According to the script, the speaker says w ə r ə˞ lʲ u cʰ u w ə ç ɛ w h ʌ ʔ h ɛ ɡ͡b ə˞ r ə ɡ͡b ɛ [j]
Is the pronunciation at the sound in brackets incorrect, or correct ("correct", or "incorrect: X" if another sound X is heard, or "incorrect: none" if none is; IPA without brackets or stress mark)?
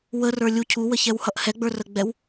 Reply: incorrect: w